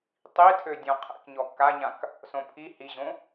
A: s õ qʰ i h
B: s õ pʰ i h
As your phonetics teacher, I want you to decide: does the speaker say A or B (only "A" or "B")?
B